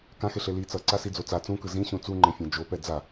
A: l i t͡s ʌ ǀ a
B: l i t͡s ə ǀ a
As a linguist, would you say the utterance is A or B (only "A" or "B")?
A